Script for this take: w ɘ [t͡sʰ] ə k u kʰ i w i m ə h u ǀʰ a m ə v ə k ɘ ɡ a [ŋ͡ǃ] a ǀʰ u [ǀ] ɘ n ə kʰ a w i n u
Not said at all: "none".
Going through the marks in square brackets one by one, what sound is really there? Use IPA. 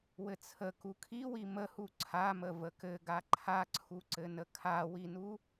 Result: t͡sʰ, ǃʰ, ǀ

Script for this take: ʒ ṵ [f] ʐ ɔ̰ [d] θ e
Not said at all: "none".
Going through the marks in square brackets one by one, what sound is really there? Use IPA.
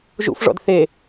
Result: f, d

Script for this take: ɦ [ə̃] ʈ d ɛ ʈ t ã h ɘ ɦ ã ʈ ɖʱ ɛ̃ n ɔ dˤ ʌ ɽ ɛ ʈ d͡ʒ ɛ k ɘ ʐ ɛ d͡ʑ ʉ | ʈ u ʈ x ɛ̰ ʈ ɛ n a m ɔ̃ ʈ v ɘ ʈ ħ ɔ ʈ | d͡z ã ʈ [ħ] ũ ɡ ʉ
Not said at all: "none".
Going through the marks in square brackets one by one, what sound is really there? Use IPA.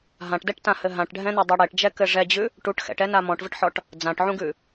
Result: ã, ʕ

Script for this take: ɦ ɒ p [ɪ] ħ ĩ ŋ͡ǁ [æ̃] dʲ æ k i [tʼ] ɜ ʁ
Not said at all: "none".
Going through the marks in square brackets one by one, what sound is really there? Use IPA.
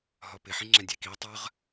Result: ɪ, æ̃, tˤ

